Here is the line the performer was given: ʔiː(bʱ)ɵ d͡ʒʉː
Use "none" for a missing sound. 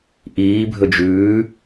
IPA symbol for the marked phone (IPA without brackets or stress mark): bʱ